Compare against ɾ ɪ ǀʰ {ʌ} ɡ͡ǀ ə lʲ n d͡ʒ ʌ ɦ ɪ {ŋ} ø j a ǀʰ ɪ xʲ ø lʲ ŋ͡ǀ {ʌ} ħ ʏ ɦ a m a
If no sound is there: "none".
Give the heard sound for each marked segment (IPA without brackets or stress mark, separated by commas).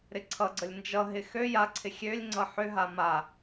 ʌ, x, ʌ